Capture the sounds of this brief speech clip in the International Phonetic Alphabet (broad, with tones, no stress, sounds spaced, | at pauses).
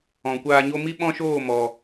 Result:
ɔ̃˨ kʷ aː˧ ɲ o˦ m i˦ ɓ ɔ̃˦ ʃ oː˦˨ m ɔ˨